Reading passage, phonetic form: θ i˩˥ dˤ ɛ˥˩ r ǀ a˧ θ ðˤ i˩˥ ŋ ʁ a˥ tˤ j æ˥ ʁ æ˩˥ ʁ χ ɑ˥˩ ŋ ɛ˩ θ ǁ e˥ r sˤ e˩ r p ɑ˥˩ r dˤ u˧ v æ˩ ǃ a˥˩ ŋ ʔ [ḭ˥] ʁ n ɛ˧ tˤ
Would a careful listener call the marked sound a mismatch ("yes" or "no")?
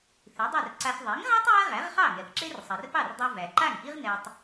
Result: yes